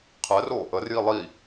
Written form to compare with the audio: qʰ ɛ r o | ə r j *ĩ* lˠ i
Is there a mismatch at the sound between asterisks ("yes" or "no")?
yes